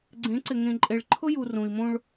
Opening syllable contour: rising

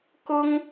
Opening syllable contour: high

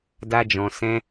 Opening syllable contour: high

